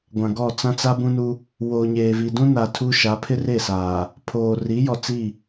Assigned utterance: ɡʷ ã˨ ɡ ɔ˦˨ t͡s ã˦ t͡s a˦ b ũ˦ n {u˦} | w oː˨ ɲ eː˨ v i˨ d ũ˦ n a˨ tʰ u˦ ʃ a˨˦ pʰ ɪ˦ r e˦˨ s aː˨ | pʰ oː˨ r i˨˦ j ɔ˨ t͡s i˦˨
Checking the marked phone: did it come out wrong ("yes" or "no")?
no